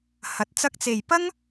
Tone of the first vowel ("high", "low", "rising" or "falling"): rising